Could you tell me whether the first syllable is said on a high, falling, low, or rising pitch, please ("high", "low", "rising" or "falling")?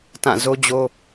falling